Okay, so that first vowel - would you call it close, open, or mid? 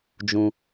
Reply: close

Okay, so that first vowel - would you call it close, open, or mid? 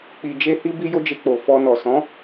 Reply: close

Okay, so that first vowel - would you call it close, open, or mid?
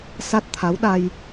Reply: open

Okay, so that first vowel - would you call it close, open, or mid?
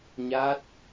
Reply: open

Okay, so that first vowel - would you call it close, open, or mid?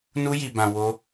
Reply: close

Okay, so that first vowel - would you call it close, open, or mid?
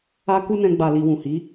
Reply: open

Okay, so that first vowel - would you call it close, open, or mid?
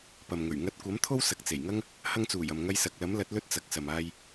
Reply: open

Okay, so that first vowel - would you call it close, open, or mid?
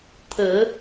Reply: mid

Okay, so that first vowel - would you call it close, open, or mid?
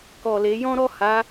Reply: mid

